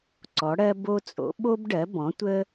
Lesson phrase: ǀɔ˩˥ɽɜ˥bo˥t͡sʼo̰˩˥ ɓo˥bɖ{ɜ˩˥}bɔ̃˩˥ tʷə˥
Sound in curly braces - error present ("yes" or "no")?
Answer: no